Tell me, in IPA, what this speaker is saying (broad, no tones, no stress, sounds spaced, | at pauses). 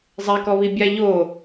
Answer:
zˤ ɛ k ɔ β i bʲ a ʎ o